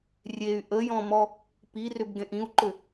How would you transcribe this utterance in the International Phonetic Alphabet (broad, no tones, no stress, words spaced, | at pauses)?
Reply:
rʲey̯ ʔəjɔ̃mɔ | pirʏbɡẽʔ ĩu̯ǃʏ